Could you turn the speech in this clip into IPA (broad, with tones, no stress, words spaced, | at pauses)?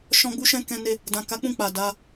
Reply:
ʃɔ̃˧ɡ͡bu˧ʃɛ̃˧ kɛ̃˧ne˧ | dã˨ka˨˦ k͡pũ˦˨k͡pa˨ da˨˦